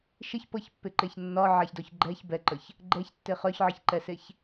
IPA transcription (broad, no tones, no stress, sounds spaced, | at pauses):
ʃ ɪ ç p ɤ ç pː ɪ ǃ e ç nː ɒ ʕ a ç d ɔ ç ɡ͡ǃ ɛ ç b ɛ ǃ ə ç | ɡ͡ǃ ɛ ç tː e χ œ ç ʕ ɪ ç ǃ ɛ s e ç